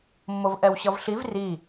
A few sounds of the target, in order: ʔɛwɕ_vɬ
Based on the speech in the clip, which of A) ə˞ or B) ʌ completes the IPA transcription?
B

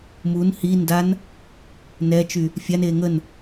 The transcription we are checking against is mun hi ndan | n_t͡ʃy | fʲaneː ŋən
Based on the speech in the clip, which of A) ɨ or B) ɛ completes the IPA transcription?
B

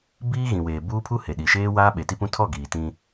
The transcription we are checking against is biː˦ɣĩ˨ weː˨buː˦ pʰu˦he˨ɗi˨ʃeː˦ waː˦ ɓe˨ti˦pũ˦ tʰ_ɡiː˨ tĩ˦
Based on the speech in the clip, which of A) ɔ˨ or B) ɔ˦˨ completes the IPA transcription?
B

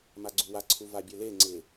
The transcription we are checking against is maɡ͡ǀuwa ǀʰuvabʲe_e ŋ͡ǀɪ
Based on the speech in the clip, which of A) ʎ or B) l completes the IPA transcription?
B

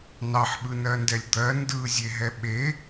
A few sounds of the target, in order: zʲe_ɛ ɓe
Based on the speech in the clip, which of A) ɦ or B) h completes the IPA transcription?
A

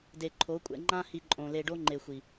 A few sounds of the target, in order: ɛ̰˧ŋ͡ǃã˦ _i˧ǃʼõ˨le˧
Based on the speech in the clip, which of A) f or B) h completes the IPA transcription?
B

